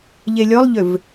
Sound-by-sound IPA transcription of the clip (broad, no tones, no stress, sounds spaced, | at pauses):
ʎ e lʲ ɔ lˠ ʎ ʏ v